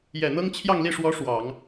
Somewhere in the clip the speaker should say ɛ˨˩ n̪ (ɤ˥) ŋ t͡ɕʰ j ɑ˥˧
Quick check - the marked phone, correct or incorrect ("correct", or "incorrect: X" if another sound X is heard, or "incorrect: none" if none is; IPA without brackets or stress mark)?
correct